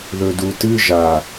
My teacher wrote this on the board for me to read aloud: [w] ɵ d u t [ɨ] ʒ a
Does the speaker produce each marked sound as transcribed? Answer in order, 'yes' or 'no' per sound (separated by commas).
no, yes